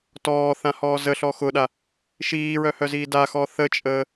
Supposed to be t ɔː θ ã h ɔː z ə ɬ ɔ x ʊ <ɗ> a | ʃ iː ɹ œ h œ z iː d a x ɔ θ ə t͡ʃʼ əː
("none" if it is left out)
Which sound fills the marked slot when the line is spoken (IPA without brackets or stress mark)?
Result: ɗ